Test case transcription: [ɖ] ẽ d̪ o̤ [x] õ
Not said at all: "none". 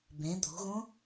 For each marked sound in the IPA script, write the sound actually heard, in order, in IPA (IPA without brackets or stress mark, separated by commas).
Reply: b, ɣ